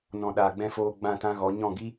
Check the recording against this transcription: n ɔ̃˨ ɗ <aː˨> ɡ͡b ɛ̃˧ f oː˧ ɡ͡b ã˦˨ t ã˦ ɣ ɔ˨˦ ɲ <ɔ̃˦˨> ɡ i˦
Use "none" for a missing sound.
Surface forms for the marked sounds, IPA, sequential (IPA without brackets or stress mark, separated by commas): aː˨, ɔ̃˦˨